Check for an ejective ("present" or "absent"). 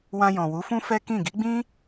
absent